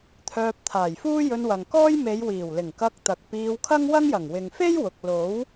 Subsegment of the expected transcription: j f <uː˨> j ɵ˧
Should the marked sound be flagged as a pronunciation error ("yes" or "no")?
yes